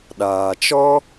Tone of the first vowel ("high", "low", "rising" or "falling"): low